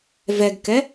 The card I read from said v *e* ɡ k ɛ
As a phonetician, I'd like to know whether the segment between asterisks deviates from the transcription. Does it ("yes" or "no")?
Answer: yes